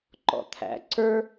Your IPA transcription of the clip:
ǃ ɔ̰˨ t̪ʰ æ̰˨˦ ǀ ə˞˦

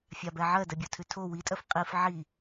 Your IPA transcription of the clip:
fʲ a b ɛ ʕ ɜ d ɜ bʲ o tʰ ʉ tʰ o w i tʼ ɜ f qʼ i f ʕ i

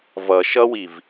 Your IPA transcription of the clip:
v ʌ ʃ ʌ w i v

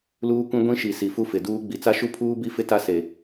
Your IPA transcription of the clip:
l uː˦ kʷ ĩ˦ ɡʷ ĩ˦ ʃ i˨ s i˨ f u˦ f ɪ˨ d uː˦ ɡ͡b i˨ t͡s a˦ ʃ u˦ pʰ uː˦ b i˦ f ɪ˦ t a˦ s e˨

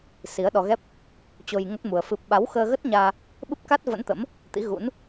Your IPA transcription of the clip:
s i˨˦ ə̯ ɗ ɔ˧ ɣ ɛ˦˥ p̚ | t͡ɕ o˧ j ŋ ə˦˥ t̚ m u˧ ə̯ f ɨ˦˥ p̚ ɓ a˨˦ w x əː˧ ɣ ə˦˥ t̚ ɲ aː˧ | ɓ ɨ˦˥ p̚ k a˦˥ t̚ v ə̰˧˥ n t̪ ə̰˧˥ m | t̪ ḭ˧˥ ɣ ṵ˧˥ n

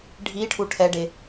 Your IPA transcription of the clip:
ɖʱ i ʈʰ u ʈʰ ɛ ɖ e

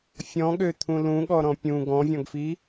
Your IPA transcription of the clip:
fʲ ɔ̃ ɠ ø t̪ʰ ũ l ũ ɠ ɔ ɾ ɔ̃ pʲ ũ ɡ ɔ̃ vʲ ɔ̃ ɡ f i

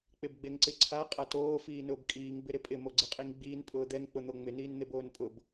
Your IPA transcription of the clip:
k͡p ɪ b ɡ͡b e ŋ ǀ ɪ ǀʰ a qʼ a t oː f iː n ʊː b kʼ iː ŋ b ɪ ɾ ɪ pʼ ɪ m o ɡ͡ǀ ɪ qʼ i ŋ ɡ͡b iː n pʼ ʊː d̪ ɛ ŋ k͡p ʊ n̪ o ŋ͡m ɪ n iː n n̪ e b oː n pʼ ʊ b

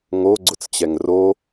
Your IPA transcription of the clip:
ŋ o ɡ͡ǀ ʊ t͡s t͡ɕ ɛ ŋ r o

